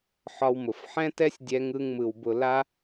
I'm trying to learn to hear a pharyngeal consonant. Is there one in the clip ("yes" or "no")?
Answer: yes